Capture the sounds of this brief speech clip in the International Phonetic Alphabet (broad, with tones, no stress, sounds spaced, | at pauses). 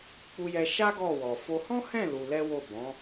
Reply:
k͡p u˧ j ɛ˧ ʃ a˦ ɡ ɔ˦˨ w ɔ˨ f o˧ h ɔ̃˦ h ɛ̃˦˨ l u˧ l ɛ˦ w o˦˨ b ɔ̃˨˦